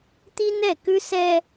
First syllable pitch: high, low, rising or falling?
high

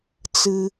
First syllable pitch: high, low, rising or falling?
low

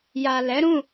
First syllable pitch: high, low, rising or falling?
low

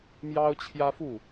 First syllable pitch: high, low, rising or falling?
high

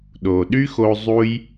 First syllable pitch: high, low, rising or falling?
low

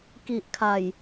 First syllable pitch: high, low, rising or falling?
low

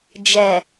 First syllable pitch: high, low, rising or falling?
low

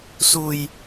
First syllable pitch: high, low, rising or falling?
low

